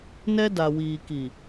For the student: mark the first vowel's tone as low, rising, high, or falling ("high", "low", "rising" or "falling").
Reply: high